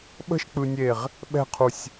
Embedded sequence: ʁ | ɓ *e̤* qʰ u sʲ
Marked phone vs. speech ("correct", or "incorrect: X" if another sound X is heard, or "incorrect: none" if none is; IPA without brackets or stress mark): incorrect: ɛ̤